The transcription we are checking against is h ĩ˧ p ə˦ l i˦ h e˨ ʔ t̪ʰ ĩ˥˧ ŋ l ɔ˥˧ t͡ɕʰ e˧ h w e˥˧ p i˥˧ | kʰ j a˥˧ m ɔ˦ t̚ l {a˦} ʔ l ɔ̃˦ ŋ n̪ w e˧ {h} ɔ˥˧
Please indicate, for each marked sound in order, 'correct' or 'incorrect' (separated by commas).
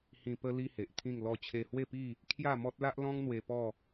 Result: correct, incorrect